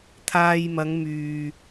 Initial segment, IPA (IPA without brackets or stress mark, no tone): t̪ʰ